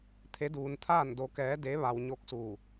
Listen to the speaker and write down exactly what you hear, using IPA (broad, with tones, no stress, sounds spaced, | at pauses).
t̪ʰ e˧˥ d uː˧ n t̪ʰ aː˥˨ n d o˧˥ k ɛː˧˥ d e˧˥ ʋ a˧ w ɲ o˧˥ k̚ s uː˧˩